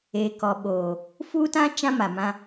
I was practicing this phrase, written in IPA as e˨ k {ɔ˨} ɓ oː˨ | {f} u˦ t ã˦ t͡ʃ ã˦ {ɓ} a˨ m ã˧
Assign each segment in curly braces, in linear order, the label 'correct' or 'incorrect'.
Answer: correct, correct, incorrect

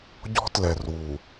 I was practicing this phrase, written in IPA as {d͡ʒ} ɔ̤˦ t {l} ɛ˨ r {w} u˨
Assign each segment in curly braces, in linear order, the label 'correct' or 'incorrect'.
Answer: incorrect, correct, correct

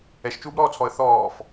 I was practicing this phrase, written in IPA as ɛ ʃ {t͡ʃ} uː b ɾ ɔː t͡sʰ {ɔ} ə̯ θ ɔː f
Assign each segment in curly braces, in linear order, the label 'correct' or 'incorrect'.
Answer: correct, correct

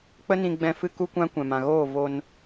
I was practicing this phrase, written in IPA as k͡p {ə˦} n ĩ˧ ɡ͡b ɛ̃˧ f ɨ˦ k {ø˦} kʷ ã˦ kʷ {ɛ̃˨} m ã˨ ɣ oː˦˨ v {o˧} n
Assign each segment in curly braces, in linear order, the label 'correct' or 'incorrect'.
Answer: correct, incorrect, correct, correct

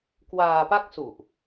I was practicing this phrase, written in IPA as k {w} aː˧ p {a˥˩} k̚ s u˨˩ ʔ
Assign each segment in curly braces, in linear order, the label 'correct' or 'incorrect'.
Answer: correct, correct

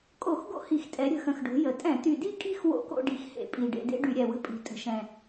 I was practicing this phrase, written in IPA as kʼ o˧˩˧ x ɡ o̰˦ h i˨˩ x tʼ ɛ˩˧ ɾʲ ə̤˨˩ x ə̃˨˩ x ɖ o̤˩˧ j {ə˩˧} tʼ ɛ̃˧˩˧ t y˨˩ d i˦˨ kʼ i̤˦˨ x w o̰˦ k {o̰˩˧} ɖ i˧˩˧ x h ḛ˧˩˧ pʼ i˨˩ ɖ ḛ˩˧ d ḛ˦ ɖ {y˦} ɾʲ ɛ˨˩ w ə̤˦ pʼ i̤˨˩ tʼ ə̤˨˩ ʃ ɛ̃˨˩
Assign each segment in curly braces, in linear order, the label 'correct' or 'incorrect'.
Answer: correct, incorrect, incorrect

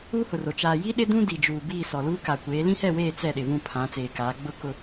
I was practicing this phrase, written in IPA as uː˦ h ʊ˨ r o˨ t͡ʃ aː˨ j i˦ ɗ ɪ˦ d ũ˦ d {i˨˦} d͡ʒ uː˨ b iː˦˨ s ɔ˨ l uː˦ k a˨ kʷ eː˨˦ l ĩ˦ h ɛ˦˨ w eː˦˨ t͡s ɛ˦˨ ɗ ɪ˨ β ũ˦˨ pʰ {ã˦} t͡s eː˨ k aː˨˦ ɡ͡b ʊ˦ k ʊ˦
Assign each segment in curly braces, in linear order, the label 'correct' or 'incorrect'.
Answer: incorrect, incorrect

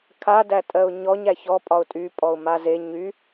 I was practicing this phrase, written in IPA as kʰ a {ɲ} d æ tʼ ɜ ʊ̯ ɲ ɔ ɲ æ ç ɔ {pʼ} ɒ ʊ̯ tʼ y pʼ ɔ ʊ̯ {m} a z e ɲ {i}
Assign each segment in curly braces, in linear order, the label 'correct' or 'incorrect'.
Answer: incorrect, correct, correct, incorrect

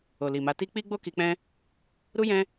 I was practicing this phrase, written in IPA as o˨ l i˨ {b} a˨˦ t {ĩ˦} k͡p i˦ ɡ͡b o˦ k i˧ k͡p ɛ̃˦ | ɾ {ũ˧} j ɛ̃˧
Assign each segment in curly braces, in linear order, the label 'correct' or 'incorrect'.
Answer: incorrect, incorrect, incorrect

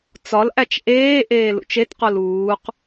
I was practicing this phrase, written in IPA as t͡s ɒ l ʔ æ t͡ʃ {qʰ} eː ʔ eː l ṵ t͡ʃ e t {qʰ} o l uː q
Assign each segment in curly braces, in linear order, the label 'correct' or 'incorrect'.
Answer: incorrect, incorrect

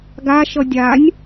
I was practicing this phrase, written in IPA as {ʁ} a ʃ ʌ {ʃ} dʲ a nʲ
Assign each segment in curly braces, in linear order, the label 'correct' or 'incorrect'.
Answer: incorrect, incorrect

